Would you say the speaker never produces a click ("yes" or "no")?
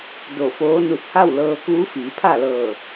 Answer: yes